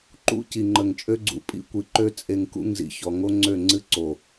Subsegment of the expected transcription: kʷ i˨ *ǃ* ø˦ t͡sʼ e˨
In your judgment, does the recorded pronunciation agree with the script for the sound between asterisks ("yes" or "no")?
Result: yes